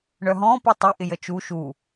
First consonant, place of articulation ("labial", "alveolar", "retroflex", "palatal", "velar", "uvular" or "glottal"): retroflex